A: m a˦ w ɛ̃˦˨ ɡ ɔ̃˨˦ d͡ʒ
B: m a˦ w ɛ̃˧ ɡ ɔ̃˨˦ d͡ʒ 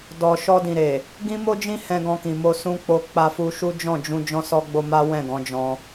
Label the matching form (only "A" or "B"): A